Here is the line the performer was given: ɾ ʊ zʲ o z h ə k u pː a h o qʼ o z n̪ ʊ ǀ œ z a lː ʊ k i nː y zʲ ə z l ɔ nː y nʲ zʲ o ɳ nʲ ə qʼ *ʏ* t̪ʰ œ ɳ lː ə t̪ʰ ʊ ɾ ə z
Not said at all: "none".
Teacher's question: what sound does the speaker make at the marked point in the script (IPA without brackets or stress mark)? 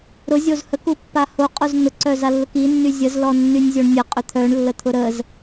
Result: ʏ